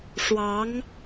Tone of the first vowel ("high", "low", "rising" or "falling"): rising